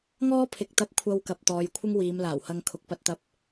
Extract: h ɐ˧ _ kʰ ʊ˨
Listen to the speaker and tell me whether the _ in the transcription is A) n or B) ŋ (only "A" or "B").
B